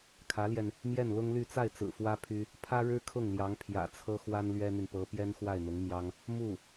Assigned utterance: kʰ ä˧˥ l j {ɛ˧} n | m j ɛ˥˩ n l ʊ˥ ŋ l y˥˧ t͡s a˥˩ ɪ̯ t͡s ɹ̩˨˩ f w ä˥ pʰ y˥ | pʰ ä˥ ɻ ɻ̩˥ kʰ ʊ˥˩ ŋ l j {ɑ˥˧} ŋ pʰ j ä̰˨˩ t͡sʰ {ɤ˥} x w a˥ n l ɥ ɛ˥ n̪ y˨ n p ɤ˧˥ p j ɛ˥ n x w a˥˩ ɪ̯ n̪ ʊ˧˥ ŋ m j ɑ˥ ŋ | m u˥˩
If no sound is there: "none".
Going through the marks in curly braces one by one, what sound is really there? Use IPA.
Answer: ɛ˧, ɑ˧˥, ɤ˥

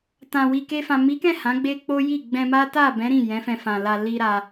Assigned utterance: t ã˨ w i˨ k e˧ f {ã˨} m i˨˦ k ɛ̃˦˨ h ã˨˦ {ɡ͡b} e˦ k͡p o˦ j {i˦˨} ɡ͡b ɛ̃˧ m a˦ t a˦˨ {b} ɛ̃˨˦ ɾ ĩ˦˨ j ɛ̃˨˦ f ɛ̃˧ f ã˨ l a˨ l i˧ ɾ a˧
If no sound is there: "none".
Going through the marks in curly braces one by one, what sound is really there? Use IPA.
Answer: ã˨, ɡ͡b, i˦˨, b

